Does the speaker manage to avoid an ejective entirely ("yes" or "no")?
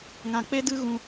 yes